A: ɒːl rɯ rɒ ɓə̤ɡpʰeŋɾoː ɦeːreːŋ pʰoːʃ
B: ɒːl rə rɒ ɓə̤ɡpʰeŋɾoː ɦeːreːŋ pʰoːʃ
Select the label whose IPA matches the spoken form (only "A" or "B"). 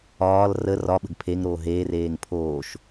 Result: B